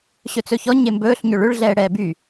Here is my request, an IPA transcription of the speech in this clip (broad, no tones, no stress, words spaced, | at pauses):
ɕɵt͡sɵçɔ ɲembɵːɬ ɲʏɭʏɭ ɮɛːɽɛːby